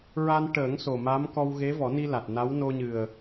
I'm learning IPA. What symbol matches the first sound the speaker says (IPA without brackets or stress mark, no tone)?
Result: ɹ